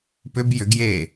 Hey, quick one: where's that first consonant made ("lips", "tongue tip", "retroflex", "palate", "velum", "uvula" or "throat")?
lips